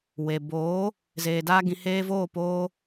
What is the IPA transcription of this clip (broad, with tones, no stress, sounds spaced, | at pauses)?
w e˨ b oː˨˦ | z eː˨ d aː˧ ɡ ĩ˨ h eː˧ v oː˦˨ p oː˦